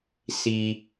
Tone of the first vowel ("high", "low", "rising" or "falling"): low